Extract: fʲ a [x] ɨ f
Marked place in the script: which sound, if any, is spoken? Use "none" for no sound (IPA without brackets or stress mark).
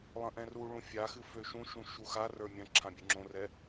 x